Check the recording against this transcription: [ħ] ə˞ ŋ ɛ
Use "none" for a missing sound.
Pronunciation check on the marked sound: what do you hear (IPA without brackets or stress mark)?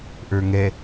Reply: ʔ